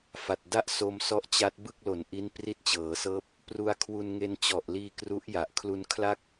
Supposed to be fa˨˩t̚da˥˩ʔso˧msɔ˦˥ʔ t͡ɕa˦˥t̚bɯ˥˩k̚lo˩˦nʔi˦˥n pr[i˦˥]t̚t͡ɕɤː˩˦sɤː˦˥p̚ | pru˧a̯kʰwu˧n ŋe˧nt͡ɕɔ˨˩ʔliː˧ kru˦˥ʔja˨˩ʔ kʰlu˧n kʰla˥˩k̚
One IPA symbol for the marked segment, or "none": i˦˥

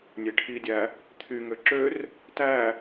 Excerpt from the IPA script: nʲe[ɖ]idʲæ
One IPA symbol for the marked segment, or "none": ʈʰ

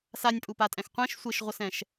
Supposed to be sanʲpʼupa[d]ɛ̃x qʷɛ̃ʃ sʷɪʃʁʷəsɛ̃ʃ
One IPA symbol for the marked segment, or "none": tʼ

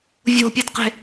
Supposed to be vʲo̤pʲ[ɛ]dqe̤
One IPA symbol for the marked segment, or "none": ɘ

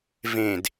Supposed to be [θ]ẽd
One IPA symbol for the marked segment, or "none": v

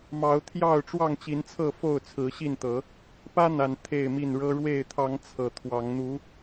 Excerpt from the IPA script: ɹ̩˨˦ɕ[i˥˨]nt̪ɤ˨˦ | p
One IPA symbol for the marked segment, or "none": i˥˨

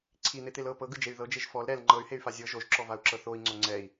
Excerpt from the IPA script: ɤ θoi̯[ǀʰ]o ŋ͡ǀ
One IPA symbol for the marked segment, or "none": ŋ͡ǀ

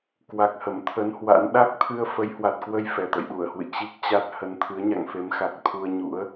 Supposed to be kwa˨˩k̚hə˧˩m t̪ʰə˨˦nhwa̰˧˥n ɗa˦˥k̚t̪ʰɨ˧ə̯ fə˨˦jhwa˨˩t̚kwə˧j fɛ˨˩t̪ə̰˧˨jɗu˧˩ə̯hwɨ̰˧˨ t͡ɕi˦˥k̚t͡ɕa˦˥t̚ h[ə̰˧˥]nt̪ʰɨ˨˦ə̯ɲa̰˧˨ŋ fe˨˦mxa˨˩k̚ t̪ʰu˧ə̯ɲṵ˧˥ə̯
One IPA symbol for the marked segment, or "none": ə˨˦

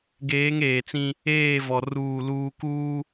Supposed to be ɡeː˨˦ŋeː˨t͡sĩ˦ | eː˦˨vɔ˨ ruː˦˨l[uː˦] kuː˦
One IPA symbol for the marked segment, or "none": uː˦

